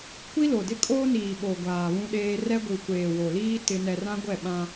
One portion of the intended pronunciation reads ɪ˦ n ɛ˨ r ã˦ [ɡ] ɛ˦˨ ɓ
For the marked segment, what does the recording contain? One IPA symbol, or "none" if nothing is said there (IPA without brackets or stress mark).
ɡʷ